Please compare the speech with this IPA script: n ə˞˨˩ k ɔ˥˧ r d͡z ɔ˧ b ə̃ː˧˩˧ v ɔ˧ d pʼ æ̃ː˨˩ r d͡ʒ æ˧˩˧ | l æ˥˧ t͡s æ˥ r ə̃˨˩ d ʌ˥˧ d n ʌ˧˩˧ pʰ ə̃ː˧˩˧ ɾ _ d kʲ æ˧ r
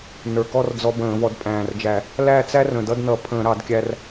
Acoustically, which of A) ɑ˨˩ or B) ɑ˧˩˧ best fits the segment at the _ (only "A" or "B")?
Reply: B